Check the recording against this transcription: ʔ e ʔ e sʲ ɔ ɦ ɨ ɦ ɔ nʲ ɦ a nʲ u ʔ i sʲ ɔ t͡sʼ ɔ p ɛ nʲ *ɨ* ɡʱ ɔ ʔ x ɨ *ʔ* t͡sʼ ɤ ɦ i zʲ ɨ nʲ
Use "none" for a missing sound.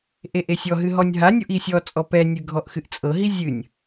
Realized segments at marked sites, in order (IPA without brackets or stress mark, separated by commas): ɨ, ʔ